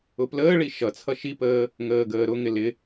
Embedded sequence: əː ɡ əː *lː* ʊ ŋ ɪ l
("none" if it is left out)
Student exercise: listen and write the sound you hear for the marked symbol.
ɾ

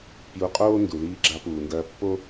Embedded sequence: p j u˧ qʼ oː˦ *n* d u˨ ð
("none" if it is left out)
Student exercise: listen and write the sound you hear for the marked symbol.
n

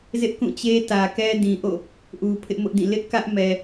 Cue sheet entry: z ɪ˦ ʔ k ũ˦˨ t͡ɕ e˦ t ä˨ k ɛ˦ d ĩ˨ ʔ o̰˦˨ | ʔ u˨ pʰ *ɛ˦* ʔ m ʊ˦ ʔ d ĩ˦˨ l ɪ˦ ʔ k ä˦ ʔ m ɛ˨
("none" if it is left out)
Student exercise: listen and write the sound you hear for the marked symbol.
ɪ˦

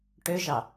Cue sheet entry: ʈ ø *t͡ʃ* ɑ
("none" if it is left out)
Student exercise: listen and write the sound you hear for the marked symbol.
ʒ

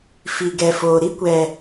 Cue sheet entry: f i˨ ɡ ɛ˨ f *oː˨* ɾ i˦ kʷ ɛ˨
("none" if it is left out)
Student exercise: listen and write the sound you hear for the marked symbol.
oː˨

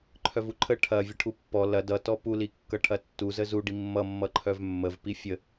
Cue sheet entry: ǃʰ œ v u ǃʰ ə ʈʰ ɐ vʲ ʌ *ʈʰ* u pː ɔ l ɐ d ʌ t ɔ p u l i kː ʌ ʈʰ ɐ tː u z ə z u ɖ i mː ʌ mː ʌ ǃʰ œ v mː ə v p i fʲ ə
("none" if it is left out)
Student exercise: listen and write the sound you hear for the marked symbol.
ʈʰ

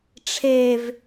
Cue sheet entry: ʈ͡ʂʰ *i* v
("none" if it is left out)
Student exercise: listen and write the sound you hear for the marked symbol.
e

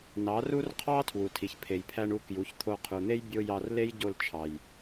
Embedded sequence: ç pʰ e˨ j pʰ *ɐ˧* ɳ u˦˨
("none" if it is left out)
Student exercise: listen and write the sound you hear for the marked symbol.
æ˧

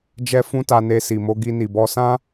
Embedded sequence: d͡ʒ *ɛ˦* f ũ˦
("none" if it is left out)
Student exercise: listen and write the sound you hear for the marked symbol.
ɛ˦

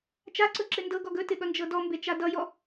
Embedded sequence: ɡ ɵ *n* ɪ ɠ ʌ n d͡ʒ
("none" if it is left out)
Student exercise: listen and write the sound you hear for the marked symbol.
t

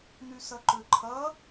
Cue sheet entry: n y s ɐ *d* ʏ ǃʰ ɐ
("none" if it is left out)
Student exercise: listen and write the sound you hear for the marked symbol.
ǃ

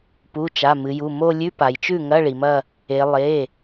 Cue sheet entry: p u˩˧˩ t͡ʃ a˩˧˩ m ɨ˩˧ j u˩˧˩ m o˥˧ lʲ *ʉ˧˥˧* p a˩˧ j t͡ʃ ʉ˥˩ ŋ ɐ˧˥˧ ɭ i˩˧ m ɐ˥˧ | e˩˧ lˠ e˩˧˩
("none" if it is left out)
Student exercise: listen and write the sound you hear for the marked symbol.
ʉ˧˥˧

